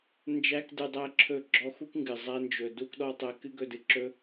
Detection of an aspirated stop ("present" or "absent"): present